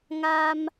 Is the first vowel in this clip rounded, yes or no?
no